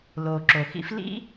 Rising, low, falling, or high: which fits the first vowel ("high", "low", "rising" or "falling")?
low